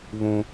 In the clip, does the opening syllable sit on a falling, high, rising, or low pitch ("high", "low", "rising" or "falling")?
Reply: high